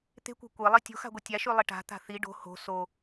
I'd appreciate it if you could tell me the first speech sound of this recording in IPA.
t̪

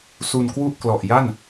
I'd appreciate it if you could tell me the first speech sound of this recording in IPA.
s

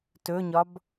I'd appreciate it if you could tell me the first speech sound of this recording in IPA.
t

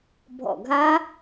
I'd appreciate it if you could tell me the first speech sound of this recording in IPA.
bʱ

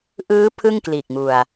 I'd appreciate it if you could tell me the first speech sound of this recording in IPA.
ʔ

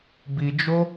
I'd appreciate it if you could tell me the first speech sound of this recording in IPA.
b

